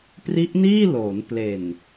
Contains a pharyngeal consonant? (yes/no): no